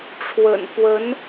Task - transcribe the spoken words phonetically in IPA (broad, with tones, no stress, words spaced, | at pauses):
ʈ͡ʂʰwə̰˨˩nfwə˧˥n